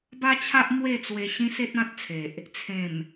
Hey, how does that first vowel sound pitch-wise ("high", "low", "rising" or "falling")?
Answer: high